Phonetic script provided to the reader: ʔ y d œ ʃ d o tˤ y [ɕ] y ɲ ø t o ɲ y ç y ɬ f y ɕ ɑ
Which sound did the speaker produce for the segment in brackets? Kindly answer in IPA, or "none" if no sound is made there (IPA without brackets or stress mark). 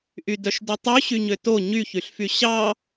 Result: ɕ